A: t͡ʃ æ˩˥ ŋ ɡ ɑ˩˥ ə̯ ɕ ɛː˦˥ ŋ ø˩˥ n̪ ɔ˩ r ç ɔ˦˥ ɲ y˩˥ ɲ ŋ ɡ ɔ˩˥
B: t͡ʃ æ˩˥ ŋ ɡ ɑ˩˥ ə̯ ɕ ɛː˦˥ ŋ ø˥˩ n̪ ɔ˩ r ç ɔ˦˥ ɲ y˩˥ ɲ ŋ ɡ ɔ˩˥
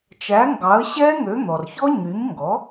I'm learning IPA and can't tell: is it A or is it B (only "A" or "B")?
A